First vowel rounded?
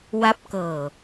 no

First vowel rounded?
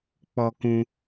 yes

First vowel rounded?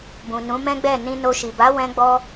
yes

